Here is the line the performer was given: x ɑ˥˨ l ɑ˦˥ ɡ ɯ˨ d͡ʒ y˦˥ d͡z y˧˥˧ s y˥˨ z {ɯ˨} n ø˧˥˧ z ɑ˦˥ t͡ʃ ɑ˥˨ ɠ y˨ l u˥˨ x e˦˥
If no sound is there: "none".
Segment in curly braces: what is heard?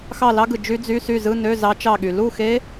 ɯ˧˥˧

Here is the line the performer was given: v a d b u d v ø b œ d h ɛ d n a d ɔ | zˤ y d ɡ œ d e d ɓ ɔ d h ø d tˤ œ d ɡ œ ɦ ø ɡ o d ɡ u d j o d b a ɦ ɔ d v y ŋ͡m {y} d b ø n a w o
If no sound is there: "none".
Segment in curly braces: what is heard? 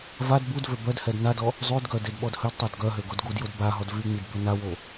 i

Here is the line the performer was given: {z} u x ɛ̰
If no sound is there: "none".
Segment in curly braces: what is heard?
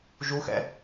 ʒ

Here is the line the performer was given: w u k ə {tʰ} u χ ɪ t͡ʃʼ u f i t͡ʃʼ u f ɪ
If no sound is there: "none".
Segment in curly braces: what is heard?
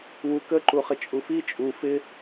ǃ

